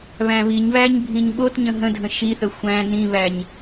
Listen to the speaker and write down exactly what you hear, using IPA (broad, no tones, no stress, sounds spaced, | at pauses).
β æ̃ β i ɲ β æ ɲ bʱ ĩ ɲ ɓ o t ɲ ə̃ ɦ ə̃ dʱ ə̃ ʃ i θ ə xʷ æ̃ n ĩ β æ ɲ